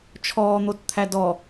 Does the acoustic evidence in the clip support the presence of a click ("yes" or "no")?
no